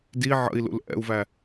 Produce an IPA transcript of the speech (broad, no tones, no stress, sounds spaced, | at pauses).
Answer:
d i ʕ ə̰ i̯ l ṵ l ʔ ɛ̰ u̯ v æ